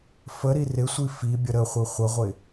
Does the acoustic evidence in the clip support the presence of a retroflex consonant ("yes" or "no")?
no